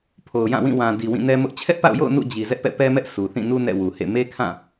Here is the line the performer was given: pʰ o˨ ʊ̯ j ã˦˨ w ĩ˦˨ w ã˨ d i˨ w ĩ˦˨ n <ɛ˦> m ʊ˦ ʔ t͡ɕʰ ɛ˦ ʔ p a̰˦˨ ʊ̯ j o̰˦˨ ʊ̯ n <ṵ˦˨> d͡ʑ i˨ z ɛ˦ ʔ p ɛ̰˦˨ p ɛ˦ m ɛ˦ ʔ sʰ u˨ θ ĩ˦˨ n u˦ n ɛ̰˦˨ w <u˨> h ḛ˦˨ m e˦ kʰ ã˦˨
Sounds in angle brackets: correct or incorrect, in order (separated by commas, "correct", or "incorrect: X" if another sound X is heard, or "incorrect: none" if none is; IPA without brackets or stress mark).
correct, correct, correct